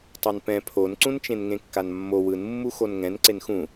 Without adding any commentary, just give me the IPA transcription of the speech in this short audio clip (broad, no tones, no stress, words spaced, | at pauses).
tˤanpɛ̃ pʰonǀũnt͡ʃẽn ŋẽkːanmːo wɯnmːu xonŋɛ̃n ǀenxũ